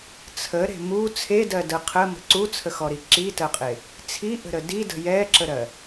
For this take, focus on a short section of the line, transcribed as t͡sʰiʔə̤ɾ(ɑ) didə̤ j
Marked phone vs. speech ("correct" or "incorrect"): incorrect